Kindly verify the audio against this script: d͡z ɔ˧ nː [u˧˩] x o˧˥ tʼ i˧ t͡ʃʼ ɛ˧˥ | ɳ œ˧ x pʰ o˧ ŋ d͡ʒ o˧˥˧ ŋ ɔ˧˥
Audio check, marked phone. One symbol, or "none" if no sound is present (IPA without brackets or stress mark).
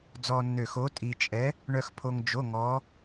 ø˧˩